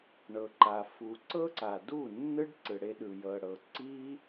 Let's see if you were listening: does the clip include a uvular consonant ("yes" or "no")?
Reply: no